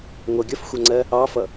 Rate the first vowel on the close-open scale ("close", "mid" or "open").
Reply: mid